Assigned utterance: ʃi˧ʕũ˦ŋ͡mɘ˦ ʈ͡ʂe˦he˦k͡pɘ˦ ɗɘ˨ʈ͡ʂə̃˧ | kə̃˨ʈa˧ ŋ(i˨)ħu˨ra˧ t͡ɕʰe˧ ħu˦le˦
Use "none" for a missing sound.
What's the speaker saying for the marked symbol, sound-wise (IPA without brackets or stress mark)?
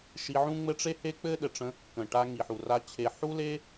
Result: i˨